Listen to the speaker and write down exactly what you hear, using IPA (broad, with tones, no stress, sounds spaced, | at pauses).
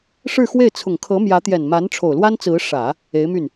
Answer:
ʂ ɻ̩˥˧ x w e˥˩ ɪ̯ t͡sʰ ʊ˨˩ ŋ kʰ ɤ˧˥ m j ä˧˥ t̪ j ɛ˨˩ n m a˧˥ n ʈ͡ʂʰ o˨˩ ʊ̯ l w a˥ n t͡s ɹ̩˧˥ ʂ ä˨˩˦ | e˧˥ ɪ̯ m y˥˩ n